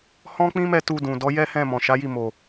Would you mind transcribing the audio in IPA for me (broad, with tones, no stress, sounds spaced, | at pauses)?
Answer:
h ɔ̃˦ k͡p ĩ˦ m ɛ˦˨ t u˧ d ũ˨ d ɔ˨˦ j ɛ˦ h ɛ̃˦˨ m ɔ̃˨ ʃ a˨˦ j i˦˨ m o˨